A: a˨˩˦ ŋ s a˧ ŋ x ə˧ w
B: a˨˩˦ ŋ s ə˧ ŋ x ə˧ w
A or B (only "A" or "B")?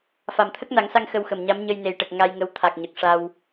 A